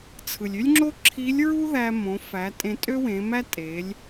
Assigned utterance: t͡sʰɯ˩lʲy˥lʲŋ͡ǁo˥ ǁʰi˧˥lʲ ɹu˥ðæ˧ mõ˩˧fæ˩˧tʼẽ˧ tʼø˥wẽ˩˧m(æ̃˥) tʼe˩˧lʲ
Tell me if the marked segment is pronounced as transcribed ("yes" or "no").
no